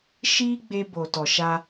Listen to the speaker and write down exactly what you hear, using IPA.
ʃ iː˦ ɡ͡b e˧ b o˨ t ɔ˨ ʃ a˧

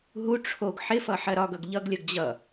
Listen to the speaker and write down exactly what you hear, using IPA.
ɦ u ʈ͡ʂʰ o ɡ ħ ɪ f ʌ ħ ɜ ɾ ɒ ɡ ʌ ɡ ʎ ʌ ɡ lʲ ʌ ɡ d͡ʑ ʌ

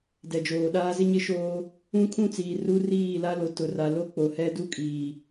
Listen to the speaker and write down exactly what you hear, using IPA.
d ɛ˨ d͡ʒ oː˨ ɗ aː˦ z ɪ˦ ɲ ɪ˦ ʃ oː˦ | ũ˦ kʰ ũ˦ t͡s iː˨ r u˦ r iː˦˨ l a˦ l o˨ t ʊ˨ r a˨ l o˦ k͡p o˨ h ɛ˦ d u˦ kʼ iː˨

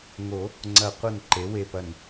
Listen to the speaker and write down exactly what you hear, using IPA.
ŋ o˨˩˦ | ŋ͡ǀ ɐ˨˩˦ qʷ ɐ˧˩ n ǃ e˩˥ w e˧˩ p ɐ˧˩ n

